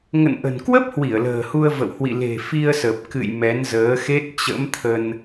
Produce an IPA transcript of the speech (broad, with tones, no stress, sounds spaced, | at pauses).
ŋ ə̰˧˨ n ʔ ə̤˨˩ n k w ə˦˥ p̚ h w i˧˩ ə̯ l ə̤ː˨˩ h u˧ ə̯ v ə̰˧˨ w h w ḭ˧˨ l e̤˨˩ f i˧ ə̯ s ə˨˩ p̚ k ɨ̰˧˨ j m ɛ˨˦ n z əː˨˦ x e˦˥ t̚ t͡ɕ ə̰˧˥ m t̪ʰ ə˧ n